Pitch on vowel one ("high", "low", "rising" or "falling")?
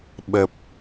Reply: low